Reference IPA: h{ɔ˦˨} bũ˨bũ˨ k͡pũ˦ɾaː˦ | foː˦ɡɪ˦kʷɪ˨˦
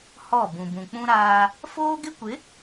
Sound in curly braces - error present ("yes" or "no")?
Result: no